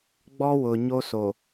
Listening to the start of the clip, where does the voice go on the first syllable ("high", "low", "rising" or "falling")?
high